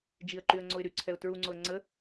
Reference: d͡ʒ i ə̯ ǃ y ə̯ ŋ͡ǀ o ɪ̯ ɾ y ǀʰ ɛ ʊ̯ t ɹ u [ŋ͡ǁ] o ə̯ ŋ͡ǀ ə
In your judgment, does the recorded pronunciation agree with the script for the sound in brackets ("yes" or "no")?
no